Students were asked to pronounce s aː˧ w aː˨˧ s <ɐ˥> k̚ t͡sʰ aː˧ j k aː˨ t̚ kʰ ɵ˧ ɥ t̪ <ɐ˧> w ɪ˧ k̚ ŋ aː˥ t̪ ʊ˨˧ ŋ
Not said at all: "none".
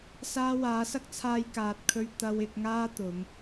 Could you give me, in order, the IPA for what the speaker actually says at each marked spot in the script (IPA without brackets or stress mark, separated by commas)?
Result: ɐ˥, ɐ˧